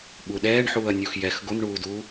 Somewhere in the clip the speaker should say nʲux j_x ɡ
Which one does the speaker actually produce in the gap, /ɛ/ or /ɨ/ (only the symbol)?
ɛ